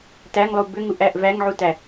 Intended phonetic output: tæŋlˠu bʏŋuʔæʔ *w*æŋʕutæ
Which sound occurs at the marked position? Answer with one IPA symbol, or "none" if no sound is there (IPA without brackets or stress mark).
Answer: v